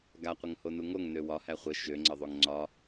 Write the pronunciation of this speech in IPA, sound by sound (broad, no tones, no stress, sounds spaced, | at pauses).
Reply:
ɡ a qʷ ə ŋ h o n u ŋ o ŋ n ø w ɒ h æ χʷ ə ʃ ø ŋ͡ǀ ə ðˤ o ŋ ŋ͡ǀ ɒ